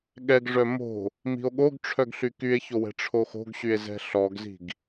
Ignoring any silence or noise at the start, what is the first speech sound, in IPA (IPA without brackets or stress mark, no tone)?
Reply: ɠ